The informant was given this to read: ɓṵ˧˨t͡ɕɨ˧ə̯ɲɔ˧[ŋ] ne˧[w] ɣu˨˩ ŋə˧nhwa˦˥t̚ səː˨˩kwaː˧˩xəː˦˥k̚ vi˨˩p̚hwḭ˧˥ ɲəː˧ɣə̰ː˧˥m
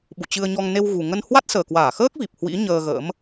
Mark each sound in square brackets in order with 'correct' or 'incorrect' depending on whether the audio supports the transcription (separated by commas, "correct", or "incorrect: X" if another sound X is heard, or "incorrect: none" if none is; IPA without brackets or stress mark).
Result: correct, correct